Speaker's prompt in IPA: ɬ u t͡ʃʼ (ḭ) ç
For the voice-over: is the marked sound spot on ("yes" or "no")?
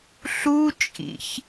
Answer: yes